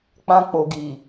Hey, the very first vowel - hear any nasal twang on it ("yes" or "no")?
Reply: yes